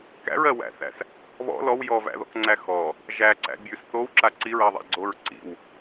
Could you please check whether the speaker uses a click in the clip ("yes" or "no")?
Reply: yes